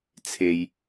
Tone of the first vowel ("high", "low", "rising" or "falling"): low